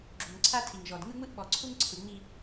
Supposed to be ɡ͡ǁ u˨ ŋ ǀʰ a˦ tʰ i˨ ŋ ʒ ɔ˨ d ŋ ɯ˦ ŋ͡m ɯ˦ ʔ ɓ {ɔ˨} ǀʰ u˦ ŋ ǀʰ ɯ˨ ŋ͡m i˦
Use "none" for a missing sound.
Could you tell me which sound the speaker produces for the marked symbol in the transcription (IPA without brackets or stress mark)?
ɔ˨